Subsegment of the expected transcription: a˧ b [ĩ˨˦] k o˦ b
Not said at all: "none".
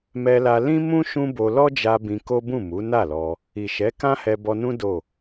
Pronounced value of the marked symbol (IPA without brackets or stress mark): ĩ˧